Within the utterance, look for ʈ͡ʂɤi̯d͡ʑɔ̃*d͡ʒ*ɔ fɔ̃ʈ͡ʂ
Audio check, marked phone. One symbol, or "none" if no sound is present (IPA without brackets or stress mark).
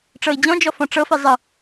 d͡ʒ